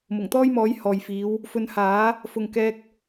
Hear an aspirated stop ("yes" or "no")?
no